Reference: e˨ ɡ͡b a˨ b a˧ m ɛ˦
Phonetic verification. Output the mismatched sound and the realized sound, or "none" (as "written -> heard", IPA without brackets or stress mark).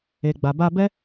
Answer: m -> b